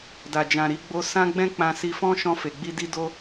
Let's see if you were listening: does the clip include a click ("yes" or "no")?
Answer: no